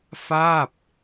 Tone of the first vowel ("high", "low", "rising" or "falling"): falling